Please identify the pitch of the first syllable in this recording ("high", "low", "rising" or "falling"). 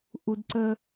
low